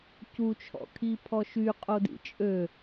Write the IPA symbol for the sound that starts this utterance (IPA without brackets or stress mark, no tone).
c